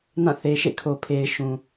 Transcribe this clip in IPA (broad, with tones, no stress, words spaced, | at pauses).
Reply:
nã˦˨θe˨ ʃḛ˦˨kʰo˨pʰe˨ɪ̯ ʃũ˨